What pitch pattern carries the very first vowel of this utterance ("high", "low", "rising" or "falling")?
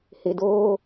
low